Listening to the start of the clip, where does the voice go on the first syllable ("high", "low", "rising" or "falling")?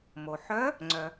low